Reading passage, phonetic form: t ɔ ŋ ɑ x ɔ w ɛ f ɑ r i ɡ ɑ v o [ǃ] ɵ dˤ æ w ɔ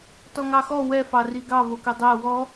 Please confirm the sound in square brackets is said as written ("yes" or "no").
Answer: no